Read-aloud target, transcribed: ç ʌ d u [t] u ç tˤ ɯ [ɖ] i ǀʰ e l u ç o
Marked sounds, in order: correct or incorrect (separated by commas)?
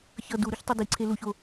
incorrect, incorrect